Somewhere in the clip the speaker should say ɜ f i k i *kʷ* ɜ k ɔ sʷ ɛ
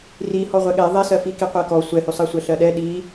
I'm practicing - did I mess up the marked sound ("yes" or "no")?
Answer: yes